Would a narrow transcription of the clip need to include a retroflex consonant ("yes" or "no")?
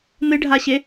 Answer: yes